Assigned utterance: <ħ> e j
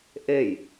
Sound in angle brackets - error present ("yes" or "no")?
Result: yes